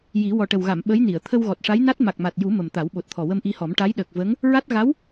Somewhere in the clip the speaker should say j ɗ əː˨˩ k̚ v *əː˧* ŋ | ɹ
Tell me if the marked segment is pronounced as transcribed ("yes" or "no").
no